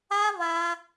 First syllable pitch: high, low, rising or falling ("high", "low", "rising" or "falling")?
high